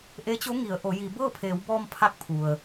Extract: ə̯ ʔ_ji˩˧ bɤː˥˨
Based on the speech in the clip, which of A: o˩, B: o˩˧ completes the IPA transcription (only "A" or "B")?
B